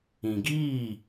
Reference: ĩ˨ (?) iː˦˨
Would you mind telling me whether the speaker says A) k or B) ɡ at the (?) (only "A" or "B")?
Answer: B